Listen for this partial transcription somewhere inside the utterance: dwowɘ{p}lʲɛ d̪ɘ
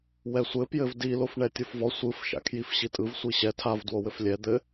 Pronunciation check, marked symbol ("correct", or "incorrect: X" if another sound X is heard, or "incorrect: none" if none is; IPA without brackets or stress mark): incorrect: f